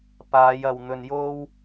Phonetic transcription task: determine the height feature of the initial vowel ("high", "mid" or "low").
low